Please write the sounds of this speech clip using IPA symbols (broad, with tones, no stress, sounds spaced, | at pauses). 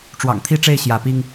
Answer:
ʈ͡ʂ w ɑ̰˨˩ ŋ t̪ʰ i˦ ʈ͡ʂ e˥˨ ɪ̯ ɕ j ä˨˦ p i˦ ŋ